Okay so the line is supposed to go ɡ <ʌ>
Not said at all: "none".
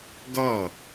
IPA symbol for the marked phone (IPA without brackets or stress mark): ʌ